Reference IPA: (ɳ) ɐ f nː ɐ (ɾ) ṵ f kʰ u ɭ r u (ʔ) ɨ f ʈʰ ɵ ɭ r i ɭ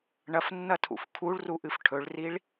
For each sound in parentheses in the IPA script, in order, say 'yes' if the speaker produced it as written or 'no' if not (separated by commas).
yes, no, yes